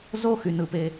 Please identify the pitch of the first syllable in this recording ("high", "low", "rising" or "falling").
high